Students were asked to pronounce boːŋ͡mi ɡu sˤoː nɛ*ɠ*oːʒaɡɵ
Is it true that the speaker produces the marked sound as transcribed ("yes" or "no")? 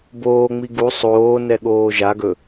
yes